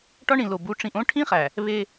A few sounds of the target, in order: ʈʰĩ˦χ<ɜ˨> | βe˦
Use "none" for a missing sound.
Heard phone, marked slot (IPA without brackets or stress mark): æ˨